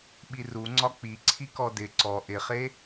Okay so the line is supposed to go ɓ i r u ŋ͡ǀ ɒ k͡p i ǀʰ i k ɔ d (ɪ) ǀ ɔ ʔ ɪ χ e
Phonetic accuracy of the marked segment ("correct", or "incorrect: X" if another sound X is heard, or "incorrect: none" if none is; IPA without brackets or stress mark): correct